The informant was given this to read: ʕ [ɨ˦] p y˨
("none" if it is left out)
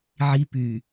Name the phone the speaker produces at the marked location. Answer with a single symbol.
i˦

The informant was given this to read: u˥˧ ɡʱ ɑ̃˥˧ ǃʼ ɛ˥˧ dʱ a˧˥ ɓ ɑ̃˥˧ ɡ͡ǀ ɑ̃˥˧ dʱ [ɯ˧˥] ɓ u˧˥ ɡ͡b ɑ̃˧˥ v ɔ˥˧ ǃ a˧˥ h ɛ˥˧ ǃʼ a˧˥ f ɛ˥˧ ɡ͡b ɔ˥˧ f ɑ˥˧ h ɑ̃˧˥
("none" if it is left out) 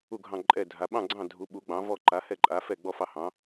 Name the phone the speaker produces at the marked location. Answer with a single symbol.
u˧˥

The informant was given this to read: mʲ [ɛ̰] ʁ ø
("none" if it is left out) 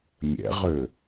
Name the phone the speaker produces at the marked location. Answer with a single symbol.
ɛ̰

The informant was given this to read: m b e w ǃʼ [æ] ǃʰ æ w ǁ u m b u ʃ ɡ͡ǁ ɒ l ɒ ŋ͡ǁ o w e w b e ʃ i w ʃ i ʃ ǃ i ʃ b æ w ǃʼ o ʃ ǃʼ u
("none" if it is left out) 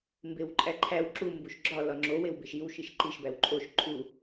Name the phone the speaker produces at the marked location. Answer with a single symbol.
æ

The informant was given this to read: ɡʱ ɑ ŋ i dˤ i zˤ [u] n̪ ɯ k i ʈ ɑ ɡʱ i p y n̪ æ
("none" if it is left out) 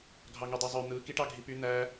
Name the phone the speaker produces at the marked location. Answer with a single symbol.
ø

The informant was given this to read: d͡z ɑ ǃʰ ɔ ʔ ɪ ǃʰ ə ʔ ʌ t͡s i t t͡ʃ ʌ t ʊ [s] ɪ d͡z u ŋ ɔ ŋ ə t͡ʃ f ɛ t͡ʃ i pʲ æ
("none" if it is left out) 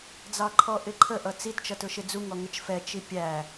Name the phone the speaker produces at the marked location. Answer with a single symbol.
ʃ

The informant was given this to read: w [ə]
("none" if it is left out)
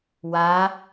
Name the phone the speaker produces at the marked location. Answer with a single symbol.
a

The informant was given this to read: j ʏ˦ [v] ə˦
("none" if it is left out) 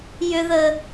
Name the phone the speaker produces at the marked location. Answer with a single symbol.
ð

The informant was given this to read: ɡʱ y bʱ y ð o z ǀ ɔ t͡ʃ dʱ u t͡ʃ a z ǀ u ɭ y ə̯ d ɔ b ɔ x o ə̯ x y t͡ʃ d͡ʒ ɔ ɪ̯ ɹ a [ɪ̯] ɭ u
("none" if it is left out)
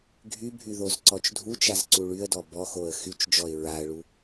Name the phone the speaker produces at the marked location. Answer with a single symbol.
ə̯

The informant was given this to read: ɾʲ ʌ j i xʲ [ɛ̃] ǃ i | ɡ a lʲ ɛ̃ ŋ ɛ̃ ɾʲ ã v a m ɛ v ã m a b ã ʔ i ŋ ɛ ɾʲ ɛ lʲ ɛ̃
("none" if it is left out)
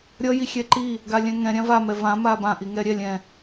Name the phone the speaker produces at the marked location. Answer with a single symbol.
ɛ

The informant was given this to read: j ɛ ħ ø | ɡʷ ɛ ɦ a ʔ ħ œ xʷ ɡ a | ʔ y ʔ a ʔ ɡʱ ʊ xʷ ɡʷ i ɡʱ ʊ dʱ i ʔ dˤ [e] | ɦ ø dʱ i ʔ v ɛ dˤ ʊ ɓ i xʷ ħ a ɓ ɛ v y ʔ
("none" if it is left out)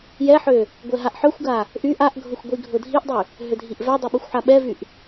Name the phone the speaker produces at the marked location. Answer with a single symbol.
y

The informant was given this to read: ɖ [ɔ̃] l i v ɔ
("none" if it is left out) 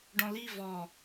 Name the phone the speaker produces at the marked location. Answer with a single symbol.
ɔ̃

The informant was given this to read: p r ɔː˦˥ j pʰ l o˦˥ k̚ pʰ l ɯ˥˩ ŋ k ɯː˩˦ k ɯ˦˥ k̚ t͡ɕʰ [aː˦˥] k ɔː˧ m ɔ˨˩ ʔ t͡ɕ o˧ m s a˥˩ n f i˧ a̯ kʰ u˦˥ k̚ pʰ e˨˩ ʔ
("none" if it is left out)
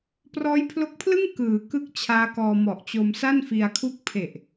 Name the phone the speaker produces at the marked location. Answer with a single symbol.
aː˦˥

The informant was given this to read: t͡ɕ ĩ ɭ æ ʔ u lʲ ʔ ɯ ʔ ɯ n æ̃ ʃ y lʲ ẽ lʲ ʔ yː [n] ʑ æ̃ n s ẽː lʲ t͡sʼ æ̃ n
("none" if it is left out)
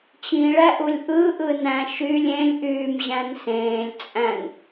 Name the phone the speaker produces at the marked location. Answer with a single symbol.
m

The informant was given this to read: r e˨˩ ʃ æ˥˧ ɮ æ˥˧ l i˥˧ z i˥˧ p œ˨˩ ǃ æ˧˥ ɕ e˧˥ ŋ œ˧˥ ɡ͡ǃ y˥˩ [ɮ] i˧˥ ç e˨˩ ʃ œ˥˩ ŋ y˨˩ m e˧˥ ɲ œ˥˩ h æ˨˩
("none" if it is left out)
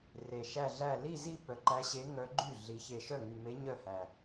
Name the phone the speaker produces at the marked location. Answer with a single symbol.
ɮ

